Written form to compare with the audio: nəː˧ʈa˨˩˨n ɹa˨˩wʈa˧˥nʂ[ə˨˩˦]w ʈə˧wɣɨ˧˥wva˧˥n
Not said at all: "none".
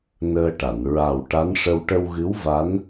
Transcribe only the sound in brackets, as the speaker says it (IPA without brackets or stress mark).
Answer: ə˧